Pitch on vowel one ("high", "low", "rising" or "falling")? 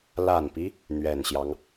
low